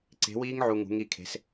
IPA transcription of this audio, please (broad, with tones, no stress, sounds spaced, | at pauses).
ǀ e̤˨˥ w iː˦˥ ŋ ʕ u˨ ŋ ṳ˨˥ ŋ i˥˨ kʰ e̤˨˥ s